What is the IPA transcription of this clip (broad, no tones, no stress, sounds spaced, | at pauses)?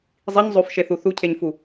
zˤ i ɲ zˤ o f ʃ e θ u θ u cʰ e ɲ f u